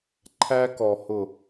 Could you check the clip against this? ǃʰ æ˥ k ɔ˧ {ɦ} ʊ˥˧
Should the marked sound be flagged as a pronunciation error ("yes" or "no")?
yes